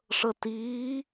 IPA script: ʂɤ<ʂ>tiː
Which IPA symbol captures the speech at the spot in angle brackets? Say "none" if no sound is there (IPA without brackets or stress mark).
none